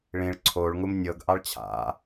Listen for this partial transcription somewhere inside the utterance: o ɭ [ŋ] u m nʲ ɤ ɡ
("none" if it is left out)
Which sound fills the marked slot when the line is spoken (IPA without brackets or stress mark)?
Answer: ŋ